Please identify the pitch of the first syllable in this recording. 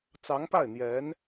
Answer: rising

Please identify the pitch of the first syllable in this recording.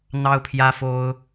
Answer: high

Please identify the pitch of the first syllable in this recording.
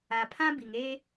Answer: low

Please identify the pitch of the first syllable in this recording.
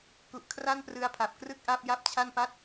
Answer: low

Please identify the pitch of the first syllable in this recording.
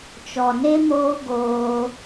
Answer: low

